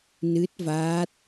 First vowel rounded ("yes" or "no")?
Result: no